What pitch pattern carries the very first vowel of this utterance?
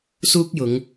high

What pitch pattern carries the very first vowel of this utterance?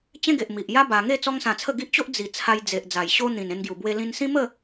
high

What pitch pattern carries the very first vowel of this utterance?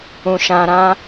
low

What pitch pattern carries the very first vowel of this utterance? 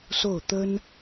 falling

